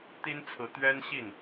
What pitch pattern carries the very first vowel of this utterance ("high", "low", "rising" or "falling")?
high